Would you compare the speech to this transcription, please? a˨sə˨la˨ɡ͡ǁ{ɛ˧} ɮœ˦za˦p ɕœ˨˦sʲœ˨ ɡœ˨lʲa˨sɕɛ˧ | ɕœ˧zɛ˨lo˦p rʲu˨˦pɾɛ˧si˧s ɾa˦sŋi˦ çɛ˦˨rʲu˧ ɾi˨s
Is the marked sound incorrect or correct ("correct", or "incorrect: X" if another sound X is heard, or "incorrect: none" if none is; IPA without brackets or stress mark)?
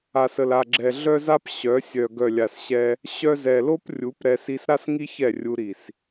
incorrect: ɛ˨